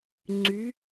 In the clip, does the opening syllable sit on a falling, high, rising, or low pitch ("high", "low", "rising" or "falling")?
rising